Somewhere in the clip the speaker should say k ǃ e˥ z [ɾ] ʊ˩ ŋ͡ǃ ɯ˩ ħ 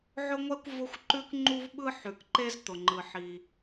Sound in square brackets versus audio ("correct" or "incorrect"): incorrect